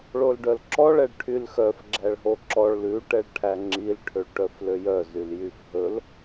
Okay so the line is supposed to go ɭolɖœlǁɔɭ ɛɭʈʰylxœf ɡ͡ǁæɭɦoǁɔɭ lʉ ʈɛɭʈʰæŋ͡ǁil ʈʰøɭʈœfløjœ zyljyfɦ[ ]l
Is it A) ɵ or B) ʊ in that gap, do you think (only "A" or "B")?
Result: A